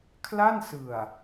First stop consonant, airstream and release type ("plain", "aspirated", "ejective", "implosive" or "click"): aspirated